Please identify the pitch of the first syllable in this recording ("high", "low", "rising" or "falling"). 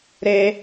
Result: high